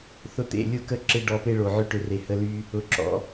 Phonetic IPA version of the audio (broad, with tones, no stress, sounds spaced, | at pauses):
θ ʊ˧ t̪ ḛ˦˨ lʲ ʊ˦˨ k ə˦ ǁ ɪ˦ ɖ ɔ˧ p e˦ ɭ o˨ ʕ ʏ˦ ʈ ʏ˨ r e˨ h ə˦ l y˦ | ʊ˨ ǁ ɔ̰˧